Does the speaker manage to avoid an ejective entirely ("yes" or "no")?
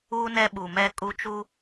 no